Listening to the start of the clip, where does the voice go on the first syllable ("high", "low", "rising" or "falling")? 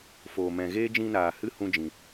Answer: low